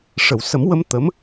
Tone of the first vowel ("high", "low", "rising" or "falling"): low